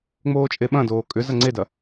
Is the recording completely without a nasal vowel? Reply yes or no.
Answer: no